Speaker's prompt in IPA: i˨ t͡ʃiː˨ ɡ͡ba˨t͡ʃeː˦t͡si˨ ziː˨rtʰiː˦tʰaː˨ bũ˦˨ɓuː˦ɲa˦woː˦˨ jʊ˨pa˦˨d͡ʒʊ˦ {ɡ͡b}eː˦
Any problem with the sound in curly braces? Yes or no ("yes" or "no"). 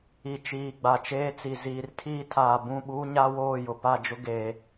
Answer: yes